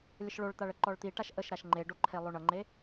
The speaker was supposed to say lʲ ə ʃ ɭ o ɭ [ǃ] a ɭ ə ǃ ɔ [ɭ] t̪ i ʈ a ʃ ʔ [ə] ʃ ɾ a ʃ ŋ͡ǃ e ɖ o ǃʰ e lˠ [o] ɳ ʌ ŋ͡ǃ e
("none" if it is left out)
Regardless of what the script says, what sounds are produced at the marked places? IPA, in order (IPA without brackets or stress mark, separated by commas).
t̪, ɭ, ə, o